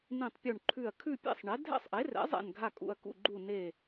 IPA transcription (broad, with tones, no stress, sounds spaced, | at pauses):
n ĩ˥˧ tˤ pʲ u˥˧ ɳ ǃʰ ʉ˥˧ ɐ̯ kʰ ʉ˥˧ pʲ ḛ˥˧ sˤ ɳ ɛ˨˥ dʱ ɛ̰˥˧ sˤ ʔ e˨˥ r ɛ̰˨˥ zˤ ɛ̰˥˧ n ɡʱ a˥˧ kʼ ṵ˥˧ ɐ̯ k ṵ˥˧ ɡ͡ǃ u˥˧ n e˥˧